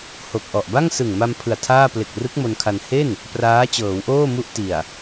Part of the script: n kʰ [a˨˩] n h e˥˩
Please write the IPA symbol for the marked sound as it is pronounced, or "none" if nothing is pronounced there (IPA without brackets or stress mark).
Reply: a˧